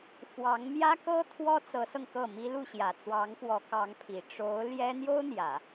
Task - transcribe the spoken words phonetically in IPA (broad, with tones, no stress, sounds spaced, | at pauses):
f w ɑ˧˥ ŋ m j ä˥ k ɤ˥ t̪ʰ w ɔ˥ t͡s ɤ˧˥ s ɤ˧ ŋ k ɤ˥˩ m i˥ l u˥˩ ɕ j ä˨˩ t͡s w ɑ˧˥ ŋ f w ɔ˧˥ k ɑ˧˥ ŋ pʰ i˨˩ ʈ͡ʂ o˧˥ ʊ̯ l j ɛ˥ n̪ j o˥ ʊ̯ n̪ j ä˨˩˦